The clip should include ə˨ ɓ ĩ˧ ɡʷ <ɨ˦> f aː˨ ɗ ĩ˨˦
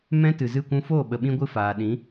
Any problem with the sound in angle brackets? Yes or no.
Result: yes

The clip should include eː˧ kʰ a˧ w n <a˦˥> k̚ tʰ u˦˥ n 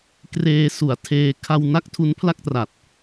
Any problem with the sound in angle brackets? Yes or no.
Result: no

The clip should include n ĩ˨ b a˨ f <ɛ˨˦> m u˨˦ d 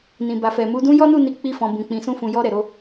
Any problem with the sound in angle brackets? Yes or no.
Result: yes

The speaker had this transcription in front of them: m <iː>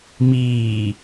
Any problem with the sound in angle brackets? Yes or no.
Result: no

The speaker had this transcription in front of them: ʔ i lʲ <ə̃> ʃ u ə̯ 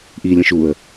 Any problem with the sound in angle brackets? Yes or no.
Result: no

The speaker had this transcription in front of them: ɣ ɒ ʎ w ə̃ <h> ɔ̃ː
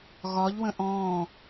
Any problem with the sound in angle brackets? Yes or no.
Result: yes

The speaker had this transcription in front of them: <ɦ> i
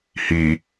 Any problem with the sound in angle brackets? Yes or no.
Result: yes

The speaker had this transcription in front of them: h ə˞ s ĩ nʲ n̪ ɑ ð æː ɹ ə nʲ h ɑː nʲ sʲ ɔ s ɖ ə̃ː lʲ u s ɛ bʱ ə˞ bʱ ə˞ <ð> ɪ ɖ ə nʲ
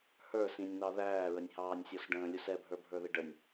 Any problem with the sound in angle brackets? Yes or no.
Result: no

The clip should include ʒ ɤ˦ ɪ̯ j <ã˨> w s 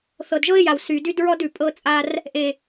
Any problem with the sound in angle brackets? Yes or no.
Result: yes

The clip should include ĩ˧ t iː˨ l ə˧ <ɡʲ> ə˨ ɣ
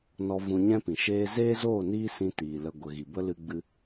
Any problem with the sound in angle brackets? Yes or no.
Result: yes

